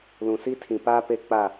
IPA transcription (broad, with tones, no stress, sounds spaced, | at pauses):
l ũ˨ s i˦ tʰ ĩ˨ p aː˦ p e˦ k͡p a˦˨